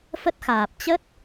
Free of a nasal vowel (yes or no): yes